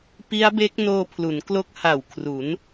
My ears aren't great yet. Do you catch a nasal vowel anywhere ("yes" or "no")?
no